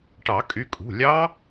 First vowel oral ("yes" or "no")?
yes